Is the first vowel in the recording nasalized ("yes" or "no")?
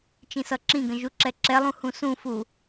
yes